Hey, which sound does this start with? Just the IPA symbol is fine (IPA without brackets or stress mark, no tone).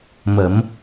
m